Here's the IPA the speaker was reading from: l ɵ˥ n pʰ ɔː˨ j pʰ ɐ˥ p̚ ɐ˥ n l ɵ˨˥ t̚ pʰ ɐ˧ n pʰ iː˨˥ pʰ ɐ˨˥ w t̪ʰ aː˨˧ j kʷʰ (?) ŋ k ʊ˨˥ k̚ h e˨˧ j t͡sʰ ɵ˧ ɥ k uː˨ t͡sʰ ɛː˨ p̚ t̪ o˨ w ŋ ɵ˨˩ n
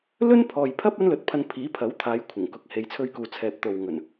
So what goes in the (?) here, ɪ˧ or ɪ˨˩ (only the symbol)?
ɪ˨˩